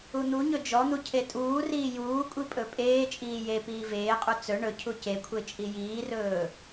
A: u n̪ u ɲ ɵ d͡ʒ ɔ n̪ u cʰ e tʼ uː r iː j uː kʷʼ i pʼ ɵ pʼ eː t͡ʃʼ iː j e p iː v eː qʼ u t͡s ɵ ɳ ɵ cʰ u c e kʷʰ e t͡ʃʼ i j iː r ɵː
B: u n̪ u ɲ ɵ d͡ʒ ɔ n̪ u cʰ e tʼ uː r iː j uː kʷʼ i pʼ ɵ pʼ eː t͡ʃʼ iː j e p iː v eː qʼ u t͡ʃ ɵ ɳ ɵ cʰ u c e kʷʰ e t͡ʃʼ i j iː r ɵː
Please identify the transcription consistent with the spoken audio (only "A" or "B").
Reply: A